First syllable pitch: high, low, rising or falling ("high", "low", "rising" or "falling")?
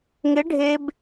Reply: rising